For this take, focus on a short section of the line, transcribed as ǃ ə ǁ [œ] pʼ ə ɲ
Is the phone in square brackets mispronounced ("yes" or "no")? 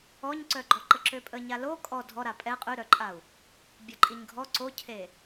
yes